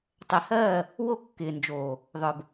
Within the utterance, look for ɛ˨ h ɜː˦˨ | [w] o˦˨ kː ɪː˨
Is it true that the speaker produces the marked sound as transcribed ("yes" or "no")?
yes